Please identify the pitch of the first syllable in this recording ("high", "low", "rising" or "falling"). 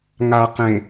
low